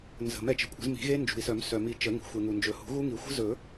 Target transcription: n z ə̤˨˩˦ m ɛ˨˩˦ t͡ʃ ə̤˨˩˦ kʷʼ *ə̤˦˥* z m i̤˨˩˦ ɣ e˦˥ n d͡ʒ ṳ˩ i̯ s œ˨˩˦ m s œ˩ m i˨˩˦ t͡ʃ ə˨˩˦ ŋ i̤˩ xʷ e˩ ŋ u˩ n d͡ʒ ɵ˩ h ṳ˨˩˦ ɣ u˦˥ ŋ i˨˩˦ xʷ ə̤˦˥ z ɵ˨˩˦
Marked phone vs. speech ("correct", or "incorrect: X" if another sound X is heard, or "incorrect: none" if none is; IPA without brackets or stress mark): incorrect: ə̤˨˩˦